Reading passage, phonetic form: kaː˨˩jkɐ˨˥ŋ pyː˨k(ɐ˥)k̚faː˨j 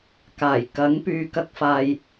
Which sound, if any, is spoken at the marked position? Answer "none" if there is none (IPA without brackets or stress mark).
ɐ˧